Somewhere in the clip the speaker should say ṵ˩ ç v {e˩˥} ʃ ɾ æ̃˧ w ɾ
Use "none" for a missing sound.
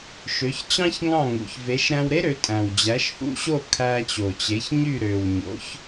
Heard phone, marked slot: e˩˥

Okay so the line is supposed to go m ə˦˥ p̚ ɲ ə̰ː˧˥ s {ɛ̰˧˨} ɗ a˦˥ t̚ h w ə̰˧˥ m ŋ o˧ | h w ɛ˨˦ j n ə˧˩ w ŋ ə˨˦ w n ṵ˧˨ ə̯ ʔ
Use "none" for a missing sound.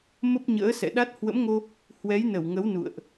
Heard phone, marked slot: ɛ̰˧˨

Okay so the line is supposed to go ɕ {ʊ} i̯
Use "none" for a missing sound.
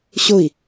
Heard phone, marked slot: ʊ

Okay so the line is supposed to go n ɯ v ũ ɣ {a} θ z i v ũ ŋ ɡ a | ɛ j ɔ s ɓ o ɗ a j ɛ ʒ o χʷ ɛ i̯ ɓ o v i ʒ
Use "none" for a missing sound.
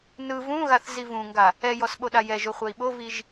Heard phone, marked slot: a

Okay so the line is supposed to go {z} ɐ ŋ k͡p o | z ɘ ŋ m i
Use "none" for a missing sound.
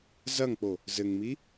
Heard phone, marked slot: z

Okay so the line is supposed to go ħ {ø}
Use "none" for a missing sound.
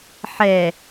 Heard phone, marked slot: ɛ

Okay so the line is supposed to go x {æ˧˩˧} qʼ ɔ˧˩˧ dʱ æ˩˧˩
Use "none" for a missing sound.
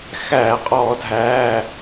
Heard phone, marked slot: æ˧˩˧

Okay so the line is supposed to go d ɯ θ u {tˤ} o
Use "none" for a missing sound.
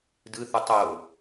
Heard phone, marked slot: tˤ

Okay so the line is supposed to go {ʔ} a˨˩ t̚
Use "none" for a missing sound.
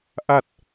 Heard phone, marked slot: ʔ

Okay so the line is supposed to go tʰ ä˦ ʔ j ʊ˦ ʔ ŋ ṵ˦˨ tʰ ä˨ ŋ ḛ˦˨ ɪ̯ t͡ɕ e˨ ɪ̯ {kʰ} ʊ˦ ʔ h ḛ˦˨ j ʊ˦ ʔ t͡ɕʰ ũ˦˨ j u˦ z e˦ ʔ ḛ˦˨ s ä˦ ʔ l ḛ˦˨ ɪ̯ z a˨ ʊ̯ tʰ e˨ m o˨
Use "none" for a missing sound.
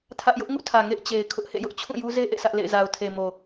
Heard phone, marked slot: kʰ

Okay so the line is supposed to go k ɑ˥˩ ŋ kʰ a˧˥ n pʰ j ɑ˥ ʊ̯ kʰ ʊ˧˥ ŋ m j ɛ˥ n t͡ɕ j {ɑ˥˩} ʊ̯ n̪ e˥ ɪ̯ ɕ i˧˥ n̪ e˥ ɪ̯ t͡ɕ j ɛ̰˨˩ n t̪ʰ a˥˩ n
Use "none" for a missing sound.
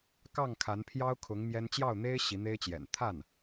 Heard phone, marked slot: ɑ˥˩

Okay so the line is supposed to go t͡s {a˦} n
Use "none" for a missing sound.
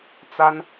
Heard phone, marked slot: a˦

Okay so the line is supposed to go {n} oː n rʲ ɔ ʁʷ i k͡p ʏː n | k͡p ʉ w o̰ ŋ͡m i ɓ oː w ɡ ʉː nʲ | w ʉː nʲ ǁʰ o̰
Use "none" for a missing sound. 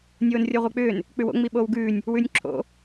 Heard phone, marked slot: nʲ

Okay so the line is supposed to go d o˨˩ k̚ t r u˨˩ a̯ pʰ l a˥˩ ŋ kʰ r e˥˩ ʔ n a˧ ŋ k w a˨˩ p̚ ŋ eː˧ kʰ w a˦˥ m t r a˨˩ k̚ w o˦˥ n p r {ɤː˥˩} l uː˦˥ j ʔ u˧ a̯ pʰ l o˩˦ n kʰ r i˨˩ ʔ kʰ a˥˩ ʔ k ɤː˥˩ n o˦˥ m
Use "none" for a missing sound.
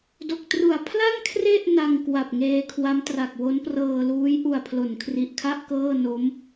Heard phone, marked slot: ɤː˧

